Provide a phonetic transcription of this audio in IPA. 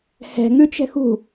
h ɛ̤ ŋ ʉ t͡ʃ ɛ̤ x ṳ

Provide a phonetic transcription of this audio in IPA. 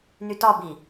n y t ɒ b i

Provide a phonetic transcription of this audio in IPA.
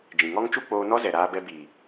d͡ʒ ĩ˨ ŋ ɔ˦ ŋ t͡ʃ u˦ k͡p oː˧ n ɔ˦ z ɛ˨ ɾ aː˧ b ɛ˧ b iː˨

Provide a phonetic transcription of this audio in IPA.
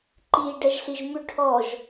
ǃ iː ɖ ɛ ʒ ɬ i ʒ m ʉ ʈʰ ɔ ʒ

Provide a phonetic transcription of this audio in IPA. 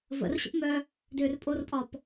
v ə̰ r ɕ ə̰ p m œ | d ʏː r pʼ o r pʼ ɒ p

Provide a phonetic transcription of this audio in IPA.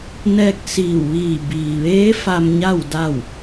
n ɛː˧ k̚ s iː˧˩ w ʋ iː˧˩ b iː˩ ʋ eː˧˥ f a˧ m ɲ a˥˨ w d a˥˨ w

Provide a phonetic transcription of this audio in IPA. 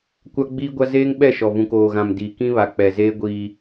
kʷ a˦ ɡ͡b iː˦ ɡʷ a˦ z eː˦ ŋ ɓ ɛ˦˨ ʃ ɔ˨ v ũ˨ k oː˨ ɣ ã˨ m d iː˨ k ĩ˦ β a˨ k͡p ɛ˨ z eː˦ ɡʷ iː˦

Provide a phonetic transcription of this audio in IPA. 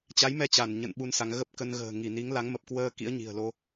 t͡ɕ a˨˦ j m ɛ˧ t͡ɕ a˧˩ n ɲ ə̰˧˨ n ɓ u˧ n s a˨˦ ŋ ɣ ə˦˥ p̚ k ə˧ n ɣ ə̤ː˨˩ ŋ i˧˩ n i˨˦ ŋ l a˨˦ ŋ m ə˨˩ p̚ k w əː˧ k ḭ˧˥ ə̯ ɲ i̤˨˩ ə̯ l o˧

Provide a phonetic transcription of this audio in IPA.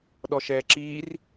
ɗ ɔ ʃ ɛː ǁ iː r

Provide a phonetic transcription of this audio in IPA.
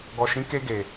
ɡ ɔ˨ ʃ ĩ˨˦ k e˧ ɡ e˨

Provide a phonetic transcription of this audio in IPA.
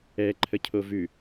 ɛ ǃʰ ə cʰ o v ʉ

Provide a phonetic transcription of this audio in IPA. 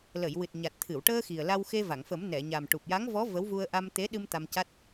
l ə˨˩˨ j w ɨ˨˩ t̚ ɲ a˨˩ t̚ t̪ʰ ɨ˨˩˨ w ʈ əː˧ x i˨˩ ə̯ l a˧ w x e˧ v a˨˩˨ ŋ f ə˨˩˦ m n ɛ˨˩˨ ɲ a˨˩ m ʈ u˨˩ p̚ j a˧˥ ŋ v ɔ˧˥ v ə˧˥ w v u˧ ə̯ ʔ a˧ m t̪ e˧˥ ɗ ɨ˧ m t̪ a˧ m c a˦˥ t̚

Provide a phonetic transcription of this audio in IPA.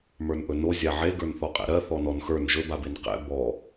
m ə˞ n ʔ ɵ n o zʲ a ʕ e ɡ ə˞ n θ ɔ qʼ ɛ̰ ɾ ɜ θ ɔ n ɔ n x ə˞ n ʒ ɵ b a b e n q ɛ̰ b ɔ

